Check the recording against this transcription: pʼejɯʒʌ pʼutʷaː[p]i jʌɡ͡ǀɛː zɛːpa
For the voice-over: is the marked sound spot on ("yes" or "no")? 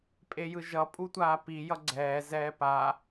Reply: yes